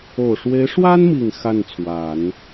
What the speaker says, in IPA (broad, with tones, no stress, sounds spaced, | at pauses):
o˨˩ ʊ̯ ʂ w e˧˥ ɪ̯ ʂ w a˥ n m i˨˩ ŋ x a˥˩ n t͡sʰ w a˨˩˦ n